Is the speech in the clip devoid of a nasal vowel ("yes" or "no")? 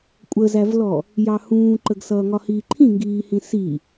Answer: no